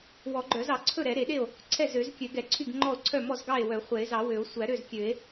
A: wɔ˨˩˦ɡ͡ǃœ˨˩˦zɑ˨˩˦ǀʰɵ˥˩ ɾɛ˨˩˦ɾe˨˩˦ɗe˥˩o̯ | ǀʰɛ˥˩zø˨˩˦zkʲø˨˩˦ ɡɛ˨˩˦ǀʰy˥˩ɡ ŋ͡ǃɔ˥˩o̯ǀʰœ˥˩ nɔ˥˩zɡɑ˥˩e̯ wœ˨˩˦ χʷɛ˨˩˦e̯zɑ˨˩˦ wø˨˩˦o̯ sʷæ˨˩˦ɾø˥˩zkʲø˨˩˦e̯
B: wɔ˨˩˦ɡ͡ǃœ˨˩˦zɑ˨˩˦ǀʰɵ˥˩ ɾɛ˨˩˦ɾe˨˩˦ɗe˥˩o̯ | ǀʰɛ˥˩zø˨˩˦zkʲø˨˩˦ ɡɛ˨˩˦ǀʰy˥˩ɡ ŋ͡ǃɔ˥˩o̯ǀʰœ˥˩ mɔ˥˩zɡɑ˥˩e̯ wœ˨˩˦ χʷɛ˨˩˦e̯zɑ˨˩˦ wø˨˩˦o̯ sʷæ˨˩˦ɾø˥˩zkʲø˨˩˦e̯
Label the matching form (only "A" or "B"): B